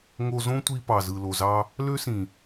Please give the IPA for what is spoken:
ŋ o˧ z õ˦ tʷ i˧ p ɑ˨ z ɯ˨ l o˨ z ɑ˧ | l ø˦ s ĩ˨

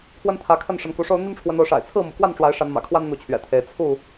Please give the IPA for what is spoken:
pʰ w ə˦ n t̪ʰ ä˨˦ kʰ ə˥˨ n ʂ ə˨˦ n k u˨˦ ʂ o˦ ʊ̯ n̪ y˦ n ʈ͡ʂʰ w ə˨˦ n o˨˦ ʊ̯ ʂ a̰˨˩ ɪ̯ t͡sʰ ɹ̩˥˨ m ṵ˨˩ k w a˥˨ n ʈ͡ʂ w a˨˦ ɪ̯ ʂ a˨˦ n m ä̰˨˩ kʰ w a˦ n n̪ u˨˦ t͡ɕʰ ɥ ɛ̰˨˩ t̪ʰ e˨˦ ɪ̯ t͡sʰ u˥˨

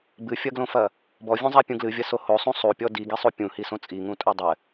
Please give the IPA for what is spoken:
b ɨ fʲ ɐ ɡ l õ f ɐ | b ɔ vʲ ũ zˤ a pʲ ũ ɡ l ɨ vʲ ɐ s o h o sˤ ũ sˤ u pʲ ɔ d i ɡ i sˤ u pʲ ũ h i s õ t͡sʼ i ŋ ũ tʼ o dˤ ɘ

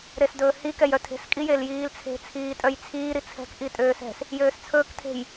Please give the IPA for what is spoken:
ɾ e s d ɵː h i k ɛ j œ tʰ e̤ s kʼ i j e l j iː l t͡sʰ e̤ t͡sʰ iː tʼ œ j t͡sʰ iː ɾ i t͡sʰ ɛ̤ k ʔ i tʼ øː s ɛ̤ s | j øː s t͡sʰ ɵː k tʰ e̤ j

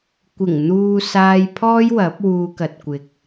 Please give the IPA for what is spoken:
kʷ ɪ˨˩ ŋ n̪ uː˨ s aː˧ j pʰ ɔː˥ j w ɐ˨˥ p̚ w uː˧ k ɐ˨ t̚ kʷ ɪ˨ k̚

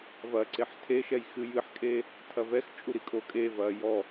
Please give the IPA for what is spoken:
v ɐ ǀ e ħ tʰ e ʃ ɛ j x ɨ j ɨ ħ kʼ e | tʰ ɐ v ɛ x t͡ʃʼ u ɾ i kʼ o kʼ e v ɐː j ɔ

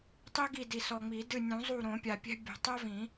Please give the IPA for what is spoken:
tˤ i˥ ɡ i˦˨ d i˨ s ɔ˨ ŋ͡m i˨˩˦ d ɨ˦˨ nʲ ũ˨˩˦ zˤ u˦˨ ɾ õ˨˩˦ pʲ a˨ pʲ ɛ̤˥ bʲ o̤˨ tˤ ɛ˥ v ĩ˨˩˦

